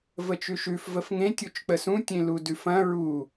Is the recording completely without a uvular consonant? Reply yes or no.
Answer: yes